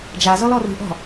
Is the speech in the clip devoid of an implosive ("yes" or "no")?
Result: yes